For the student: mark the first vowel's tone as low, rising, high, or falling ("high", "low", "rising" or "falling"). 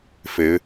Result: rising